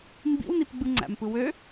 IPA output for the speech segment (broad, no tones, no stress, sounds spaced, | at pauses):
m b ḭ w n i p ɡ͡b ɯ ŋ͡ǀ æ̰ m p ɯ w ø